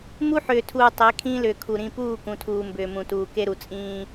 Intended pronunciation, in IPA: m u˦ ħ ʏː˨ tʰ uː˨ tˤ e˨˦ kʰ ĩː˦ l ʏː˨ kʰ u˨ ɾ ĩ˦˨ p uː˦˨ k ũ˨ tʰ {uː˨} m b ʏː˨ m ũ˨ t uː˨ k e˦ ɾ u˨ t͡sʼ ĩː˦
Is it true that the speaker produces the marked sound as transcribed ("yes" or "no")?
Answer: yes